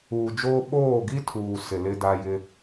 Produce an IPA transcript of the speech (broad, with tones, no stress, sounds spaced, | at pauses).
uː˨ d͡ʒ oː˦ ɓ oː˦˨ ɡ i˦ tʰ uː˨ s ɪ˨ l ɪ˦ d a˦ j ɪ˦